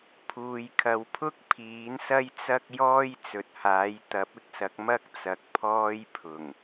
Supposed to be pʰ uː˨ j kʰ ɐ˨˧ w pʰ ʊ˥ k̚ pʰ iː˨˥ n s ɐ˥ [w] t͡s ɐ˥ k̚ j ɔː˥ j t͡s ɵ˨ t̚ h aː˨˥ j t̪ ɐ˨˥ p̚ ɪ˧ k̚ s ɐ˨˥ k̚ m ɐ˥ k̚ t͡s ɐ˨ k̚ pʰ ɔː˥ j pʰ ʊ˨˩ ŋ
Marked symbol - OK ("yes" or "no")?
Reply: no